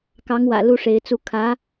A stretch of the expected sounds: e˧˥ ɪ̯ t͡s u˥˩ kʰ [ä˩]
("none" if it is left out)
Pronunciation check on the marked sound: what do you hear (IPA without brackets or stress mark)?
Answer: ä˧˥